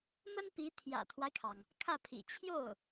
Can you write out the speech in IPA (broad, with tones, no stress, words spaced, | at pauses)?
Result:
mə˥npi˧˥ t̪ʰjä̰˨˩t̪ʰwa˦ɪ̯kʰɑ˩ŋ | kʰä˥˩pʰḭ˨˩ t͡ɕʰjo˥˩ʊ̯